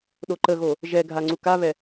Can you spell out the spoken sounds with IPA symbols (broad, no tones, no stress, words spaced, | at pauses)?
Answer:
ɗoǃəɣo | ʒɛɡʱa ŋ͡ǀukaβɛ